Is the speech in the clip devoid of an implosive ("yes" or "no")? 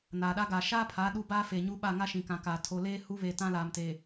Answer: no